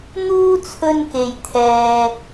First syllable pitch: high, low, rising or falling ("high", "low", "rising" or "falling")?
high